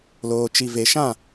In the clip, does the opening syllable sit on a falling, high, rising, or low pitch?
low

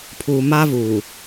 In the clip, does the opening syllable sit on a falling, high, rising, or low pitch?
low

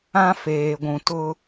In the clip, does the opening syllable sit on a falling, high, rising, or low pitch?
high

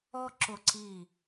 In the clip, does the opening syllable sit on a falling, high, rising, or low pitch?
high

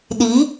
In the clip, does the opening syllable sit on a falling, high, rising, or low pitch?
rising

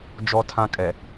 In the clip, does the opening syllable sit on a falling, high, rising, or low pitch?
high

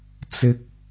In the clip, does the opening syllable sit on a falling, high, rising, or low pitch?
high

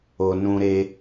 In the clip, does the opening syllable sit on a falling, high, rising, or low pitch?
low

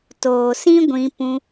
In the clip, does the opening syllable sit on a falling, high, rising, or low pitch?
low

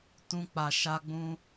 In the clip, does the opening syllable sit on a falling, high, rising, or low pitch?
high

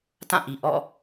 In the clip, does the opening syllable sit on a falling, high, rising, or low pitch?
falling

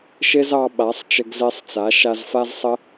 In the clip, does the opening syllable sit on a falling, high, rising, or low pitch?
high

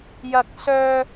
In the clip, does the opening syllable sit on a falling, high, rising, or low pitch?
high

